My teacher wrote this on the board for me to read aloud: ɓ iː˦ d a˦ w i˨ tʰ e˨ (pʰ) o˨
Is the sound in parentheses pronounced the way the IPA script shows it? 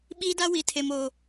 no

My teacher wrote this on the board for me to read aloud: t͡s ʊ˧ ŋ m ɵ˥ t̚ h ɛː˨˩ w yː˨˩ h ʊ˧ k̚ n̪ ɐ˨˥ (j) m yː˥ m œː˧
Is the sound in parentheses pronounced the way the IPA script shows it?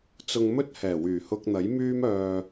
yes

